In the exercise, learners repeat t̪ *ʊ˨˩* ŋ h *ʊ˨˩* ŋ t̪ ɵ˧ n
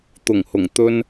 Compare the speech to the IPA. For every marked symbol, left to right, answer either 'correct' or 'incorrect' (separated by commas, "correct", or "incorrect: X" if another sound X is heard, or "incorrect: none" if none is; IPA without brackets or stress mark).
correct, correct